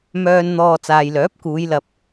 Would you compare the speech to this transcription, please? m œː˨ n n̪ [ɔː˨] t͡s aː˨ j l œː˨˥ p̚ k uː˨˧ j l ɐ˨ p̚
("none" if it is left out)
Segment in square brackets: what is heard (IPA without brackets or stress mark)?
ɔː˨